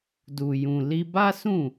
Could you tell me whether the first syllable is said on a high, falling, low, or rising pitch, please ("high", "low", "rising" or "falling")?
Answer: low